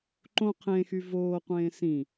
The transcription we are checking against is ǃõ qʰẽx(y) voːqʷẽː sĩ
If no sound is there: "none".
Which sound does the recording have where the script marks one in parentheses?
y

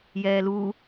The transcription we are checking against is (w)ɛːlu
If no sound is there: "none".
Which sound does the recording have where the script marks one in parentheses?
j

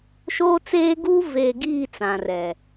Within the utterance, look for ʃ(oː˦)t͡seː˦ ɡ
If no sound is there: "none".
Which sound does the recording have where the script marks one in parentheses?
oː˦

